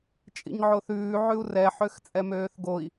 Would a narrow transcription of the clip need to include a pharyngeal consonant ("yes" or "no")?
yes